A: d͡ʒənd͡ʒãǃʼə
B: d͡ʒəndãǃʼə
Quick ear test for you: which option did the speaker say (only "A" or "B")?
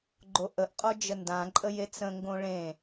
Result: B